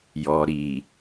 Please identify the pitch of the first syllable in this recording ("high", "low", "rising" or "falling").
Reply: low